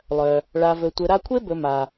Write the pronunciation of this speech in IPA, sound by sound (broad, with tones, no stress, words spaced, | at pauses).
lˠœ˩ | ɭa˨vɵ˨ tʷɘ˨ɾa˦kʷʰe˥bɵ˨ ma˩